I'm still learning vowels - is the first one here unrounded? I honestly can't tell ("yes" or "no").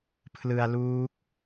yes